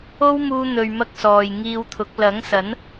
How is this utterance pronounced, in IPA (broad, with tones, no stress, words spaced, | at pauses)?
o˥wmuː˧n̪ɵ˨ɥmɐ˧k̚ sɔː˨jŋiː˧wt̪ʰʊ˨˥k̚ lɐ˨˥ŋsɐ˨˥n